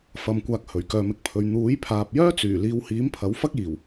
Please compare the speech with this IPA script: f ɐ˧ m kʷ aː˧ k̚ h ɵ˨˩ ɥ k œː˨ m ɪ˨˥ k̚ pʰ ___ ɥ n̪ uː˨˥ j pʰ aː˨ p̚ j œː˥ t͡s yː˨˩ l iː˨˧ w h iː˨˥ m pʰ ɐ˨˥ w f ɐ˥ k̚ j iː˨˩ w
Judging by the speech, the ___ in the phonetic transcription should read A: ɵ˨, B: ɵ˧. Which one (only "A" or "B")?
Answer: A